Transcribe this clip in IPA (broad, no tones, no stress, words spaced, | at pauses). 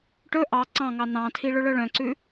ʈɵ ʔɑ ǀɑ̃ŋɑ nɑ̃tʰi ɭɵɭœɭœ̃ǀʉ